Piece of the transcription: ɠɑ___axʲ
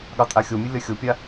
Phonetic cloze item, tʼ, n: tʼ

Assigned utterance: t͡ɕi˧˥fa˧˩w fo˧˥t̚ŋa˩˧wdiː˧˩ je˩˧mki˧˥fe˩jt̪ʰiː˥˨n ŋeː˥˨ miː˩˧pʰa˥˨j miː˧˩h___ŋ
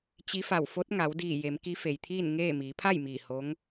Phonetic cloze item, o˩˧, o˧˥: o˧˥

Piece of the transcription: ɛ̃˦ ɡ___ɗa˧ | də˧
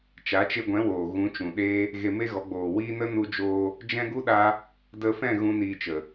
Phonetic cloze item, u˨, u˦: u˦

